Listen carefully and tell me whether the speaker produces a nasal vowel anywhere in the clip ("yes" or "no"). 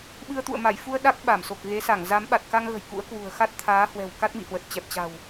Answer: no